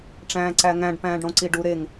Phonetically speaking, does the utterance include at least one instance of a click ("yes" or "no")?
yes